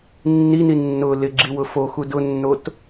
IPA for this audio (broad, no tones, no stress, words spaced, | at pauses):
nːini nːʊ lɪɡ͡ǁiwʊ foxu dʊnːot